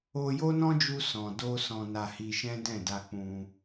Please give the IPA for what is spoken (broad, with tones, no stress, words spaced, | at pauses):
o˧jo˦nɔ̃˦d͡ʒu˧ sɔ̃˨do˧ sɔ̃˨na˨ hi˧ʃɛ̃˦dɛ̃˦˨ da˧k͡pũ˧